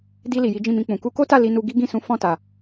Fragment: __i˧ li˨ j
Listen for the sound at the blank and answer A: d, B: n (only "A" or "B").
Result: A